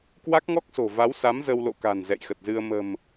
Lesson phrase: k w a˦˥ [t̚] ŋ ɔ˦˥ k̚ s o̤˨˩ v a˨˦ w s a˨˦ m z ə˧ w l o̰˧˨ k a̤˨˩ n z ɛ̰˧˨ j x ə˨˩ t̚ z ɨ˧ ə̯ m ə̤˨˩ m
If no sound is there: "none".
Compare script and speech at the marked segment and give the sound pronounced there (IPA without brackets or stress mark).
k̚